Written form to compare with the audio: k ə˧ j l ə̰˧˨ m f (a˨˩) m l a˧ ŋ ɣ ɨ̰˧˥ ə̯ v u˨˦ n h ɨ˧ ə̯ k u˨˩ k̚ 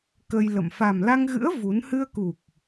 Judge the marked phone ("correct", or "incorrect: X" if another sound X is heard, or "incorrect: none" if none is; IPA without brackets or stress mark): correct